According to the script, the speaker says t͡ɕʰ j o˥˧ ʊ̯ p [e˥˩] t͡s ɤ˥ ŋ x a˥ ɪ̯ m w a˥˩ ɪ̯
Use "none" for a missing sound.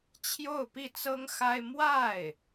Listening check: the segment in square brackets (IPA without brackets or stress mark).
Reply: i˥˩